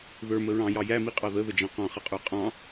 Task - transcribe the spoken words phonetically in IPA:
ðə˞mə ɹɑ̃jɑ jæmiqʼɑ ðəðəd͡ʒɑ̃ qɑ̃χʌqʼə˞ qʼɑ̃

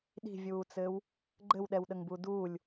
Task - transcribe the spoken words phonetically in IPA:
ɗi̤vʲuːt͡sɘːw | ɡ͡ǃɘwɗɛwɗəŋbu duːlʲ

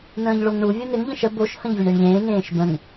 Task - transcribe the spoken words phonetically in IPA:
nə̃ːʎɭoŋɳu vʲonɪŋ ʎə̃ʃə boʃ hə̃ʎvʲəɳeɳʎẽː ŋẽːʃbə̃ŋ

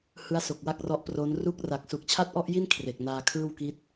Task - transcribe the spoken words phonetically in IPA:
hɯ˦˥a̯so˨˩k̚ wa˥˩k̚rɔ˦˥ʔpro˦˥n ru˦˥k̚ra˨˩k̚ su˨˩k̚ t͡ɕʰa˥˩t̚ʔɔ˥˩ʔji˥˩n kʰre˨˩k̚naː˧kʰɯː˥˩wki˦˥t̚

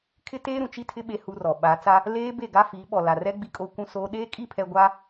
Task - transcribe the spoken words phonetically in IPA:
kʰɪ˦teː˦ ɾũ˨t͡ʃi˦tʰɪ˦ ɓe˦hu˦rɔ˨ ɓa˨˦ t͡sa˦ | leː˦ be˦˨ɡa˦ fiː˨˦ɓɔ˨la˨rɛ˦ ɡ͡bi˦kʼoː˦ kʷũ˦soː˦ ɗeː˦ kʼi˦˨pʰɛ˨ ɡʷa˦

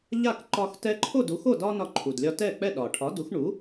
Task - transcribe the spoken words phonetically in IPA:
ʎa˥˩kǃɒ˧x tɛ˧ǃʰo˥˩du˩˥xo˥˩ dɒ˥ nɒ˧ǃʰu˩dlʲɒ˧tɛ˥˩ k͡pɛ˥˩ɗɒ˩ ʈʰɒ˩˥du˩˥x ɳu˩˥

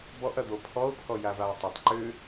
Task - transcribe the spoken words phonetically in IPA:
bɔʔɐd̪o pʰɔʊ̯pʰɔ javaə̯tˤɐtˤ ǃʏ

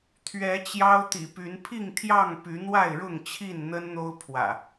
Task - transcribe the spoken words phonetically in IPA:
t̪ʰɥɛ˨˦t͡ɕjɑ˦ʊ̯t̪ḭ˨˩py˨˦n pʰi˥˨ŋt̪ʰjɑ˥˨ŋ py˨˦n̪wa˥˨ɪ̯ɻʊ˥˨ŋ t͡ɕʰi˥˨nn̪ə˦nn̪o˦ʊ̯pʰwä̰˨˩

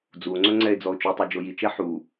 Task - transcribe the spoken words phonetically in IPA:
d͡zuo̯ŋ͡ǀɵ ŋ͡ǀɛe̯d͡zɔo̯t͡ʃutˤø d͡ʒojit͡ʃɛ ħu

